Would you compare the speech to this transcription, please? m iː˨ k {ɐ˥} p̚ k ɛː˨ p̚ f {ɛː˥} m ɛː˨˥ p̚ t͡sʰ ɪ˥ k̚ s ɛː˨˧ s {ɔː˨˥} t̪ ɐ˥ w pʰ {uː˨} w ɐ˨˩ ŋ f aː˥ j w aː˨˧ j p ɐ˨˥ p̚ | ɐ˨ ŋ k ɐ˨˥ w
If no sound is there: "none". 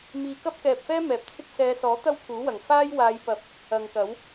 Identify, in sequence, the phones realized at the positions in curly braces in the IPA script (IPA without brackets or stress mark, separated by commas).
ɐ˥, ɛː˥, ɔː˨˥, uː˨˥